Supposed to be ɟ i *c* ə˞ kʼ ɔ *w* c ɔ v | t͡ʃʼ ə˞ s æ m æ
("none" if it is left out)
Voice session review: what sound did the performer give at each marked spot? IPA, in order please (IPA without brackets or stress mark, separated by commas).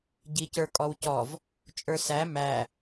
c, w